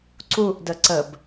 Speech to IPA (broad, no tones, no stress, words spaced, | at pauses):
ǀuʔdə ǀəb